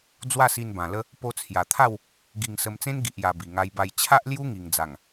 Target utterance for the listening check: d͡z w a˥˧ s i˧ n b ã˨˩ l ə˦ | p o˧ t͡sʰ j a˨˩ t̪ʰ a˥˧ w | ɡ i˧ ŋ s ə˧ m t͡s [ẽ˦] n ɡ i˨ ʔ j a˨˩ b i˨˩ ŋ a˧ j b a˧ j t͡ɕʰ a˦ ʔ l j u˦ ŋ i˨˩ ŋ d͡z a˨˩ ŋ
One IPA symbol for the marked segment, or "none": ẽ˦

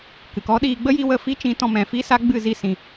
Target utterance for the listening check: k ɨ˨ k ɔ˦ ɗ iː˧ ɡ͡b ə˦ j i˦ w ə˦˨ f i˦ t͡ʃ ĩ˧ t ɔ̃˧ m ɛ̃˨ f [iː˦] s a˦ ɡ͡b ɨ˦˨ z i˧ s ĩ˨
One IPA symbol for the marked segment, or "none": i˦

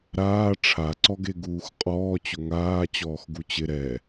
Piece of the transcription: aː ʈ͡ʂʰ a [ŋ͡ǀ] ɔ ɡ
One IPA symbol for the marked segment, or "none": ǀ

